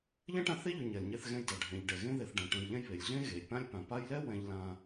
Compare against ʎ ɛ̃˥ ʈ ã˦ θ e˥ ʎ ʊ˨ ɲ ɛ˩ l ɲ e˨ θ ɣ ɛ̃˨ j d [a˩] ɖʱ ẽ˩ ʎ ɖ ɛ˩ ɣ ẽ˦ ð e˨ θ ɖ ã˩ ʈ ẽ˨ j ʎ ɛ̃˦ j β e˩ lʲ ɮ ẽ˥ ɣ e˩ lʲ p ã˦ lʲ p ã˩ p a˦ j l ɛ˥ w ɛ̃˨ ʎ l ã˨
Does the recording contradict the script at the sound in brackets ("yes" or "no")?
no